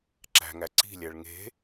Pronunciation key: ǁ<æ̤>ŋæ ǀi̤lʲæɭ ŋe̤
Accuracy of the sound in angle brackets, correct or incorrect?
correct